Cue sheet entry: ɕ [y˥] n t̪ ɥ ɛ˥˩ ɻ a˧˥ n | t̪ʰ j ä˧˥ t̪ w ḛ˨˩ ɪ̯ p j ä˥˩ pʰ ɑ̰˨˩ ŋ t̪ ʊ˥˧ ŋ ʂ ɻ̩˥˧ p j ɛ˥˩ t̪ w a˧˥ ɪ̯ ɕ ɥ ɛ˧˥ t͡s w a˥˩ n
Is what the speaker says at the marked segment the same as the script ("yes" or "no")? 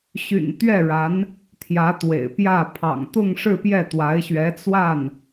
no